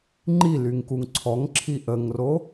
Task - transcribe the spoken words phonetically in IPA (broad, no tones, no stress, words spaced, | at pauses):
ŋ͡ǃilyŋkuŋ ǀʰɔŋǁʰi ʔəŋro